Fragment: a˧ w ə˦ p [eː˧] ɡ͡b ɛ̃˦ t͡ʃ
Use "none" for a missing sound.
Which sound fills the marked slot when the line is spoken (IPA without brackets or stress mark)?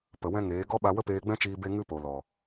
eː˧